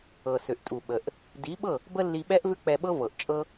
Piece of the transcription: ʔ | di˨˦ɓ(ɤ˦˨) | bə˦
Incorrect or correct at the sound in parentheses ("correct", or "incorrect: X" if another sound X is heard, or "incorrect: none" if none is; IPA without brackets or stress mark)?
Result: correct